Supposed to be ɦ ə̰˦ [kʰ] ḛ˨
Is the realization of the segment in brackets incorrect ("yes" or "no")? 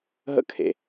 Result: no